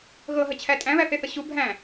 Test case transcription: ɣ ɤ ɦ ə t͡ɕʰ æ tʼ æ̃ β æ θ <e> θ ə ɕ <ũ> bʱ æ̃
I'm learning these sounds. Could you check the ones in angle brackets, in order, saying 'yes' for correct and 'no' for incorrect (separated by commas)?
yes, no